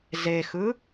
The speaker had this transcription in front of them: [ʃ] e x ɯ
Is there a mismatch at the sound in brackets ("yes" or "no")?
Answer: yes